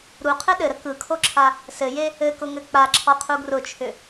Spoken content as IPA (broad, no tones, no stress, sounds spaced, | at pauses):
ɾ u qʰ ɘ ɗ ɘ ɾ ə k ɯ kʰ o ǁʰ a | s ɘ j e | ɘ k ʊ ŋ ɘ k͡p a ǁʰ ɔ qʰ u ɡ r ʊ t͡ʃʰ ʏ